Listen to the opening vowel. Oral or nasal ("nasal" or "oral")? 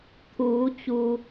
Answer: oral